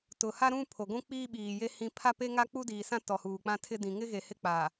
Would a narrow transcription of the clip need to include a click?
no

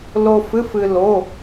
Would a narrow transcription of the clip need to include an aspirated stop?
no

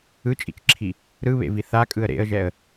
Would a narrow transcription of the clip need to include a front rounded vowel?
no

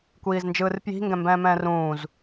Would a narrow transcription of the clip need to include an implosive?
no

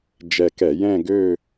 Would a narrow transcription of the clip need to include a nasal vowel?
yes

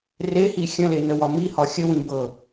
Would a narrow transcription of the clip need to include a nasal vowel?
yes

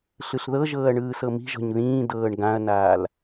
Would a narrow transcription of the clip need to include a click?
no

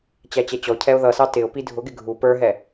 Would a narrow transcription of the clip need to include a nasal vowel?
no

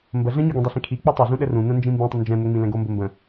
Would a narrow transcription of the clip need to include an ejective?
no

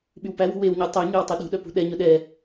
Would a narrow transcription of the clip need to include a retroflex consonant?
no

